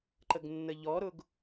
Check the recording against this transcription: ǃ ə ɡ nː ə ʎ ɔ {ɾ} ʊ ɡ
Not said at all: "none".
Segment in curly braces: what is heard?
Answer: ɾ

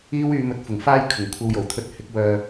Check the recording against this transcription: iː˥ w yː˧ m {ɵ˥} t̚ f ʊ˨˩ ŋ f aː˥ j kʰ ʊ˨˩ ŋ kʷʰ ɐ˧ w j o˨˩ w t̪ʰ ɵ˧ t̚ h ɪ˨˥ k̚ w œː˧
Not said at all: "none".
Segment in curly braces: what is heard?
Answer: ɵ˨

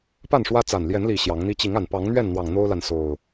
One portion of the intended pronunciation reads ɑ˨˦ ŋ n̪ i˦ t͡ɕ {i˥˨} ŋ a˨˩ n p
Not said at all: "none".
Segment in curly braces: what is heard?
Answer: i˨˦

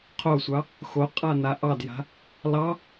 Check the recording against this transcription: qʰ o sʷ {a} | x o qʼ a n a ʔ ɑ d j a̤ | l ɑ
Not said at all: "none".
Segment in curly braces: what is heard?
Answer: ɑ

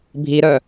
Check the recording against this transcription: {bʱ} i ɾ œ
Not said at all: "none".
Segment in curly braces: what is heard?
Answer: bʱ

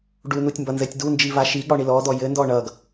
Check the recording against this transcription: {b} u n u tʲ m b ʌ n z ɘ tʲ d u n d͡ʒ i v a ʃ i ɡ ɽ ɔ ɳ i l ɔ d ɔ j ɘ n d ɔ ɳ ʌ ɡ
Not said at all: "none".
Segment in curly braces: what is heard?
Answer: ɖ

